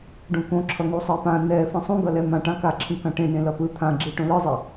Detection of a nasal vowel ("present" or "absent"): present